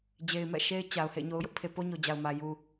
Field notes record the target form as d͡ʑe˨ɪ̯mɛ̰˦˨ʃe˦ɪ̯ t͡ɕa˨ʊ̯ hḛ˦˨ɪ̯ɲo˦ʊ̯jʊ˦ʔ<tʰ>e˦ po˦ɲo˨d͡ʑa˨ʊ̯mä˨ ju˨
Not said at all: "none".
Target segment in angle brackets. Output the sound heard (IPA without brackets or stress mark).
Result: pʰ